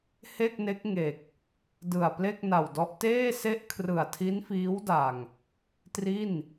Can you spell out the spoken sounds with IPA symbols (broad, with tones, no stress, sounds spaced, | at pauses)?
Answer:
h e˥˩ k̚ n e˦˥ k̚ ŋ e˨˩ k̚ | d ɯ˨˩ a̯ p l e˥˩ k̚ n a˨˩ w d ɔ˦˥ ʔ t eː˥˩ s e˥˩ ʔ kʰ r ɯ˨˩ a̯ tʰ i˦˥ n f iː˦˥ w d a˨˩ ŋ | t r i˥˩ n